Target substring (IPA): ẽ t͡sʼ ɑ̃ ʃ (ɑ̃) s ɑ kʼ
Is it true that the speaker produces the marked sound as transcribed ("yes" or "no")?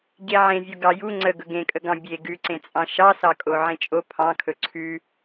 no